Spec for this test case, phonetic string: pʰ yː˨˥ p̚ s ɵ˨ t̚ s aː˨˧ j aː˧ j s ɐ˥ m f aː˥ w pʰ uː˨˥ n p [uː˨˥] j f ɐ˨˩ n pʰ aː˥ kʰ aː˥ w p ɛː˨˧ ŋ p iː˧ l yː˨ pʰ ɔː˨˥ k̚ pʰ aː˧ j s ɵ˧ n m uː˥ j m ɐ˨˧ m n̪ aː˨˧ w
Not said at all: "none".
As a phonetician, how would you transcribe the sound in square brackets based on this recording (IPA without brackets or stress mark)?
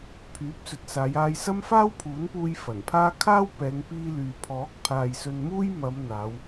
uː˧